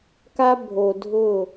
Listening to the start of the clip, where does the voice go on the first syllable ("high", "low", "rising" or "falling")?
high